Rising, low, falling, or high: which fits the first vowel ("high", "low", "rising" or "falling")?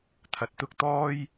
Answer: rising